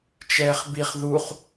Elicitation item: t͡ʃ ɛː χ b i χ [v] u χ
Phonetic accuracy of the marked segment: incorrect: ð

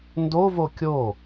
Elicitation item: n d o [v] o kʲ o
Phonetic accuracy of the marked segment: correct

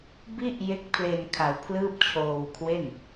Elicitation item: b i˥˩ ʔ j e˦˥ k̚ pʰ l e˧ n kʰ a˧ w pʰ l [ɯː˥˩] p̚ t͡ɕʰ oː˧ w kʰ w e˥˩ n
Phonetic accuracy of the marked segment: correct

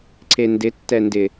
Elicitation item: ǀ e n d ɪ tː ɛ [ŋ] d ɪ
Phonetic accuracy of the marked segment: incorrect: n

